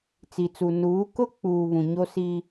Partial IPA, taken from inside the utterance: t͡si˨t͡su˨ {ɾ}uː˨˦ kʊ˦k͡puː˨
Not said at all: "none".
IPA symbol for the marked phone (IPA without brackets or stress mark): n